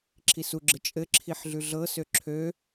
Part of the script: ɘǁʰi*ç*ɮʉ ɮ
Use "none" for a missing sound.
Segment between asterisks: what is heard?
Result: ħ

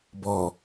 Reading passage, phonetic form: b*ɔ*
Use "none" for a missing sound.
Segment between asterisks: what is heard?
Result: ɔ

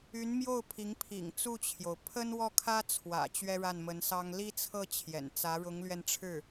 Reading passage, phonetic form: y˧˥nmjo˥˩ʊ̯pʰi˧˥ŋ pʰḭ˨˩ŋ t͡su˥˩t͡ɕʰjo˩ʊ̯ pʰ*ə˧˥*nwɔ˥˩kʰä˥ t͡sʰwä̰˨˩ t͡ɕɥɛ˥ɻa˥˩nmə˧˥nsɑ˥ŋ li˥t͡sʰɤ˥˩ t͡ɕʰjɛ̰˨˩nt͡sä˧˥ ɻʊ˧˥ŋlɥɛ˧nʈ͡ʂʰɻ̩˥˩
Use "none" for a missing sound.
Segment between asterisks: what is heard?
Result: ə˥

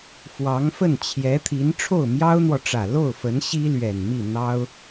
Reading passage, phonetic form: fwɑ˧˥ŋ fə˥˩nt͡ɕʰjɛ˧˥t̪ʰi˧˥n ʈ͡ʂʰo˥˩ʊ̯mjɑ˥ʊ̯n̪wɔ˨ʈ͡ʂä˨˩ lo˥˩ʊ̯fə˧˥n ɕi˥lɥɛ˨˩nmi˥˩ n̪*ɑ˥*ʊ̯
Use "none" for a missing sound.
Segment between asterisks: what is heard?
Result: ɑ˥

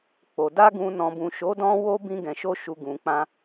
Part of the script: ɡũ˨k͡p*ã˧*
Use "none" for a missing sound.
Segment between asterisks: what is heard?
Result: ã˧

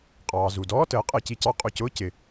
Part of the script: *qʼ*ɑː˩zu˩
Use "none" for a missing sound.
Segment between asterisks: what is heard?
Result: qʼ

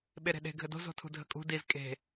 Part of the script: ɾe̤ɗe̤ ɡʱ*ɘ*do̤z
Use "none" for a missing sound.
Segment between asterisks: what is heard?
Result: ɘ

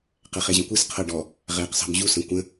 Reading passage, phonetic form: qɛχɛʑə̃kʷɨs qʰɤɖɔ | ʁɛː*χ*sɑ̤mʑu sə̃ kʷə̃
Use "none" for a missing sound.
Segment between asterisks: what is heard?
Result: q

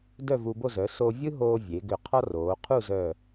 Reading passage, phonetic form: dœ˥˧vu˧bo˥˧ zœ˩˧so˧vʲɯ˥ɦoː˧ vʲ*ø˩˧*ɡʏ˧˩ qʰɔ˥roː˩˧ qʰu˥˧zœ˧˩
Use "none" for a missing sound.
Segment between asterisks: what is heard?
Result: e˩˧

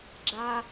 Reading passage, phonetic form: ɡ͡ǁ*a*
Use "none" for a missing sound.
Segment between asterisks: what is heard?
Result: a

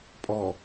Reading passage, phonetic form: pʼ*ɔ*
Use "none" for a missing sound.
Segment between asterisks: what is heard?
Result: ɔ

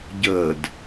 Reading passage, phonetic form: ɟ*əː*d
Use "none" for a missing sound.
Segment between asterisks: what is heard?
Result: əː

